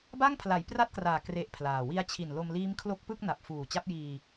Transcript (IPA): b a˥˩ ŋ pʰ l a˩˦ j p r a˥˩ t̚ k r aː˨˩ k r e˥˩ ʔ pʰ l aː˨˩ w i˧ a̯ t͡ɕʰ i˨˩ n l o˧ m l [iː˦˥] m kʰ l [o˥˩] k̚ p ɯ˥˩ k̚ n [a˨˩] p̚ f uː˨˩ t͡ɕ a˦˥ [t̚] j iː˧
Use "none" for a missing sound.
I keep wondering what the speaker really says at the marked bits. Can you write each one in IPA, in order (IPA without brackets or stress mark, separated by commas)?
iː˦˥, o˦˥, a˨˩, p̚